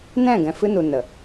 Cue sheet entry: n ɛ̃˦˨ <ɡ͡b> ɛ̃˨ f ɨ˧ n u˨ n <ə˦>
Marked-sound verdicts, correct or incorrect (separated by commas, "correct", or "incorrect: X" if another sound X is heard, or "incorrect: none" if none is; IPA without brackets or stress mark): incorrect: ɡ, incorrect: ə˨